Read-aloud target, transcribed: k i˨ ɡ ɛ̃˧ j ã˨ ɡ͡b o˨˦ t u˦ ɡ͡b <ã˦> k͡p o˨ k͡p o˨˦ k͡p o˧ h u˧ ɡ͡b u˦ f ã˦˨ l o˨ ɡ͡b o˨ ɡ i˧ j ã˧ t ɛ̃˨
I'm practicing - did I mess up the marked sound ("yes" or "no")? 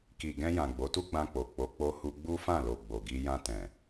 yes